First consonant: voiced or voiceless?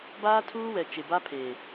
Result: voiced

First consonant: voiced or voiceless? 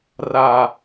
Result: voiced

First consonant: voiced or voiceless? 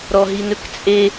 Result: voiced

